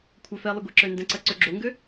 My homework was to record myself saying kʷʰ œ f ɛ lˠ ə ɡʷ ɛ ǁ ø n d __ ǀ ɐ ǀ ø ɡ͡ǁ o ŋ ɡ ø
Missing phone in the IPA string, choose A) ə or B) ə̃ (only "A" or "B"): B